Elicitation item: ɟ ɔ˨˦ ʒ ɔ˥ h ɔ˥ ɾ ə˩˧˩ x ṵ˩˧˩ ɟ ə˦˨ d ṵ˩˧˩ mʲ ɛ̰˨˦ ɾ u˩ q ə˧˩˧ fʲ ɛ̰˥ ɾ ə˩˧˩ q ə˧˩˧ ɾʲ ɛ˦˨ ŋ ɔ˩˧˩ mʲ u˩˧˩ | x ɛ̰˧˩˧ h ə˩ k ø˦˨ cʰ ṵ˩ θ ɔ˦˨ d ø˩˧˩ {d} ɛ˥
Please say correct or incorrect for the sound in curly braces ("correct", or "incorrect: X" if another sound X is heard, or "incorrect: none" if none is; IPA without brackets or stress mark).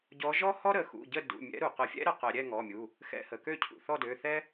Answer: incorrect: θ